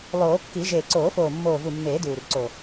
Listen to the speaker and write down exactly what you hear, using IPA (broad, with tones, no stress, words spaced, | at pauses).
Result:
lˠoː˨˩˦kːi˨˩˦ ʒeː˨˩ǀoː˨˩˦foː˨˩ mːoː˨˩vu˨˩ mːeː˨˩˦ duː˨˩rǀo˨˩